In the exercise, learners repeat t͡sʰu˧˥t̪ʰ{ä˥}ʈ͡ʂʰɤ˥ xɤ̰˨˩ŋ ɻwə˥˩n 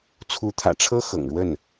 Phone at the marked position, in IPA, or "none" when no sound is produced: ä̰˨˩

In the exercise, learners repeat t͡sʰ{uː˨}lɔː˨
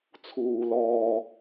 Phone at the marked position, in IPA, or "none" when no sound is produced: uː˨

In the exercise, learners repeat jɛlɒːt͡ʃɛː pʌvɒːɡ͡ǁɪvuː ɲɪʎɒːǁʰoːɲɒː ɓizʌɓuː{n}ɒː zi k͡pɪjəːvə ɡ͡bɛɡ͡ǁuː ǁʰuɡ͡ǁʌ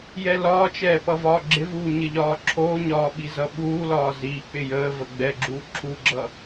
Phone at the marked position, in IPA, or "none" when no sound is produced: l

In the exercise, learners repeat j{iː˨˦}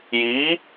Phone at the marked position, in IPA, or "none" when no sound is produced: iː˨˦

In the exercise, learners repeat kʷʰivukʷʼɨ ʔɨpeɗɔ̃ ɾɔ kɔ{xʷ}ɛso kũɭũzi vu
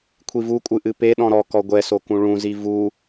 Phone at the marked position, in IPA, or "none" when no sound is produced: ɡʷ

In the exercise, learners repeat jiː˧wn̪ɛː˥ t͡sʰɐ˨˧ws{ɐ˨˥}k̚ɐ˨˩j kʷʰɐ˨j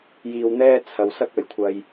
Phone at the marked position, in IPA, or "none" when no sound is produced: ɐ˥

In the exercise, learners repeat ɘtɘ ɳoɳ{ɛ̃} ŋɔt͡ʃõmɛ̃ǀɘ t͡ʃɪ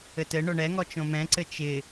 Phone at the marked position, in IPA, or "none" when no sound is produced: ɛ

